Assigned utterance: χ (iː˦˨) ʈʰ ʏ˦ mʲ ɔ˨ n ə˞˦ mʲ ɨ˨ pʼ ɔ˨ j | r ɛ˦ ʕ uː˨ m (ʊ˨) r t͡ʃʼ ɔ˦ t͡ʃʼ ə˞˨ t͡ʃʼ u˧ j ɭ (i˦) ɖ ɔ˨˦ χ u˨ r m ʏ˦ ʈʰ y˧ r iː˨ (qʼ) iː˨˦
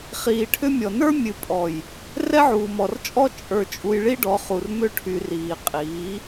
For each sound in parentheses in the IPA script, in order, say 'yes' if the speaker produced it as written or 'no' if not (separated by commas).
no, no, yes, yes